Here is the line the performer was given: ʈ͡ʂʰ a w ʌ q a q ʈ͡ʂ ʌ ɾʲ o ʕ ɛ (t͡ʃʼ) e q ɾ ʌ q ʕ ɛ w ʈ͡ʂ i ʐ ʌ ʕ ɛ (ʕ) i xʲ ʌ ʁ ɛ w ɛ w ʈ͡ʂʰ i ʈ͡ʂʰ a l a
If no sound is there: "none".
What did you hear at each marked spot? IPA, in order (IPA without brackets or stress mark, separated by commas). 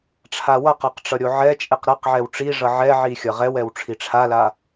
t͡ʃʼ, ʕ